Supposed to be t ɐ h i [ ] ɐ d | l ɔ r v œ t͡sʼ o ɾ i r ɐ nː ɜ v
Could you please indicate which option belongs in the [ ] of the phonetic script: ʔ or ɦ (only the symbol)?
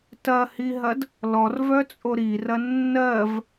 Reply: ɦ